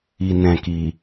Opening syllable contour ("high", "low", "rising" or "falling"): low